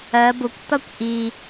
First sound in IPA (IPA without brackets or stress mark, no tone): ɜ